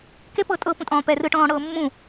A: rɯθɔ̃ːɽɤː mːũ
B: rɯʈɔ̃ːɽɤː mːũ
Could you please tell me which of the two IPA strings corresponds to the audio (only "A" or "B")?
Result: B